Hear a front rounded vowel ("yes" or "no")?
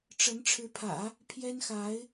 no